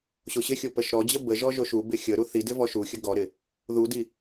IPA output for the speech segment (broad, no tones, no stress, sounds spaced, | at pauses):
ɕ o ɕ ɪ xʲ o p ə ʃ ɾ ɔ d͡ʑ ə b ə ʒ ɔ ʒ o ʃ u b ɪ xʲ ə ɾ u θ i d ɪ v ɔ ʃ u xʲ ə ɡ ɔ ɾ ɪ | ð u d i